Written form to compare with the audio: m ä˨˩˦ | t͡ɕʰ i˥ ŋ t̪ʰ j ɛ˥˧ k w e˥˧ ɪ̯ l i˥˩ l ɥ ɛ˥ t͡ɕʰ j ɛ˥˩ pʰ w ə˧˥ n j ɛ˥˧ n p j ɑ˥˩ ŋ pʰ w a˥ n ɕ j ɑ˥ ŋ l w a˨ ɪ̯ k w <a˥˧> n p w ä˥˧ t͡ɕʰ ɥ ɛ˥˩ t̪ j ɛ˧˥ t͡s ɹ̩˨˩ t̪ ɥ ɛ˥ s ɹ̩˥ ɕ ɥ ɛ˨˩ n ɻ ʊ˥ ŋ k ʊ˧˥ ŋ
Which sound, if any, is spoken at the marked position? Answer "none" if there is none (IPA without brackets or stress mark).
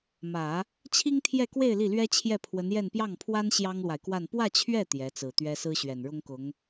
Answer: a˥˧